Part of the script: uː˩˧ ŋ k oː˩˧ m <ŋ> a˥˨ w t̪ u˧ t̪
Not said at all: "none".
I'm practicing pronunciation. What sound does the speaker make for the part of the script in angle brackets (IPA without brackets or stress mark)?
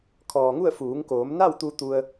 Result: n